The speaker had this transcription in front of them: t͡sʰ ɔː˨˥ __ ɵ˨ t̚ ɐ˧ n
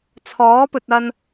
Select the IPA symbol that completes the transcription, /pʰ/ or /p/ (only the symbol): p